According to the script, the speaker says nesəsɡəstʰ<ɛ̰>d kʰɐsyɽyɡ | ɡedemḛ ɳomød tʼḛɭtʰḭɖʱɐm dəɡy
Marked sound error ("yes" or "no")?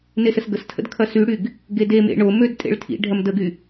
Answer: yes